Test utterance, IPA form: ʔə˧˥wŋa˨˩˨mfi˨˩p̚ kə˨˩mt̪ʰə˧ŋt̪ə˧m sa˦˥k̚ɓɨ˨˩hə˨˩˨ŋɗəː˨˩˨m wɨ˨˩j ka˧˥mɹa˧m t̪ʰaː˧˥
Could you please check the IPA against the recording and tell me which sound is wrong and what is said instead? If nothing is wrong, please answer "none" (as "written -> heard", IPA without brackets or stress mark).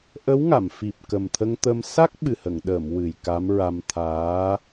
none